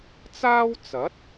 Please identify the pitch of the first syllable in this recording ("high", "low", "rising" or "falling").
high